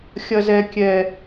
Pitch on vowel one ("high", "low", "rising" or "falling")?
high